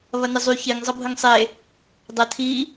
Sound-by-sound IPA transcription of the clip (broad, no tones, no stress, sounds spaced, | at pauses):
β ɐ n ɪ zˤ y ç ɪ ŋ zˤ ʌ bʱ ə ŋ sˤ e | dˤ ɐ tʰ i